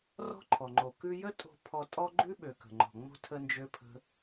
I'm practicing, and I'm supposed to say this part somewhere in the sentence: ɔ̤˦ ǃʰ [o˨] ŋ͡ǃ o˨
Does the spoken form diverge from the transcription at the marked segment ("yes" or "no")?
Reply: yes